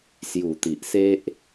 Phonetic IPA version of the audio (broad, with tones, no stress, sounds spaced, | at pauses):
s j u˨˩ t̪ i˨ ʔ s e˦ ʔ